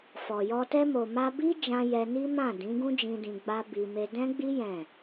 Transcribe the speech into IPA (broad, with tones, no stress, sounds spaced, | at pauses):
f ɔ˨ j ɔ˧ t ɛ˧ m o˨ m a˧ b i˦ d͡ʒ ã˧ j ɛ˧ n i˦ m ã˦˨ d ĩ˨˦ ɡ ũ˦ d͡ʒ ĩ˧ d ĩ˧ ɡ͡b a˦ b i˧ m e˧ d ɛ̃˦ ɡ͡b i˦ j ɛ̃˦˨